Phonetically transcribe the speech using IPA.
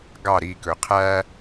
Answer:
ɡ ɑ ɾ i k ɵ qʰ æ

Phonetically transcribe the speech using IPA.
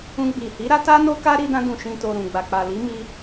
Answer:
ũ˧ ɡ͡b i˨ h i˨˦ ɾ a˦ t a˦ n o˦ k a˦ ɾ i˧ d ã˧ d ũ˨ ʃ ĩ˨ t o˨ ɾ ũ˨ ɡ͡b a˨ k͡p a˨ l i˨˦ m i˧

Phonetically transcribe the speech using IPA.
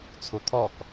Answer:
t͡sʰ u t̪ʰ ɔ k

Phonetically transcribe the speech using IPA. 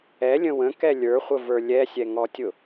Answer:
ɛ lʲ ə̃ w ə̃ k ɛ lʲ ə˞ χʷ ə v ə˞ lʲ ɛ sʲ ɛ ŋ ɔ tʲ ʊ

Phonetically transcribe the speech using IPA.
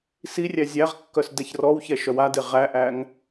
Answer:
s i rʲ æ zʲ æ ʁ kː œ s d ɛ ç r ɔ w ç ɛ ʃ œ w a d e ʁ æ ʔ æ ŋ

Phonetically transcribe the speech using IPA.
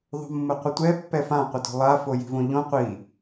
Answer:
ðˤ o̤ mː ə qʷ ə tʷ ɛ pː ɛ f ã qʷ ə d o̤ lˠ a f o j i̤ v õ ʎ õ qʷ i

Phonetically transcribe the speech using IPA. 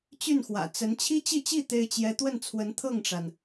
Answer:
t͡ɕ y˥˩ n x w ä̰˨˩ t͡s ə˧˥ n t͡ɕʰ i˥ t͡ɕ i˥˧ t͡ɕ i˥˩ t̪ e˥ ɪ̯ t͡ɕ j ɛ˥ t̪ w ə˥˩ n t͡sʰ w ə˧˥ n t̪ʰ ɤ˥˩ ŋ ʈ͡ʂ a˩ n

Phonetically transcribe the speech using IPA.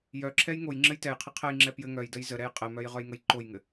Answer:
j œ ǁʰ ɛ j ŋ o j ŋ͡ǁ ɘ j t ɛ j qʰ ɘ qʰ ɛ j ŋ͡ǁ ɛ p j ɘ ŋ œ j d ə j z ə ɾ ɛ j qʼ ɘ m œ j ʁ œ j ŋ ə j ǃ o j ŋ ɘ

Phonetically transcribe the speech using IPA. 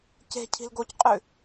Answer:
c e̤ cʰ i̤ l ɡ o c qʼ ʉ

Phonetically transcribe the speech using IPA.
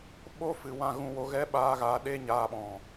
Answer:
ɓ o˦ f ɨ˨ w ã˦˨ ɣ ũ˧ w o˨˦ ɣ ɛ˦ ɓ aː˧ ɣ a˨˦ ɗ eː˦ ɲ aː˧ ɓ ɔ̃˨

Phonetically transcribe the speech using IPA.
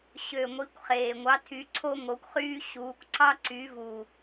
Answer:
ɕ ø˨˩ ŋʷ i˨˥ kʷ χ eː˨˩ ŋʷ ɑ˨˥ tʰ y˨˥ ǀʰ o˥ ŋ o˨˥ kʷ χ yː˥ ɕ uː˨˥ kʷ ǀ ɑ˥ ǀ y˨˥ v u˨˩

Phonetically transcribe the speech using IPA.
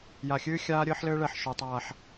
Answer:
j a˨ xʲ ɨː˦ xʲ aː˦ ɾʲ ɘː˦ ħ l ɘː˦ ɭ ɛ˨ ħ ʃ o˨ tˤ aː˨ ħ

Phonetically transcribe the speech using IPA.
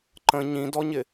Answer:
ǃ ə̃ ɲ ĩ d ɔ ɲ ɪ

